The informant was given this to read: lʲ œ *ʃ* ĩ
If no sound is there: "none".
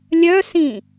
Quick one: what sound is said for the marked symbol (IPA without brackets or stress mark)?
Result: s